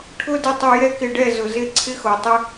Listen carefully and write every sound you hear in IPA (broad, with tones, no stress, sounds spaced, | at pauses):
ʈʰ ʊ˦ d ɪ˧ tˤ o˧ j ɛ˦ k ɪ˧ ɖ ɛ˦˨ z ʊ˨ z ɪ˧ ǀʰ ɪ˦ x o˨ tˤ ɪ˦